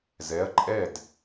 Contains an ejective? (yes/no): yes